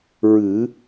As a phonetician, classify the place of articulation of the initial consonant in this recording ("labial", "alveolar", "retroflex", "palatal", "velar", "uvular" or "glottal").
alveolar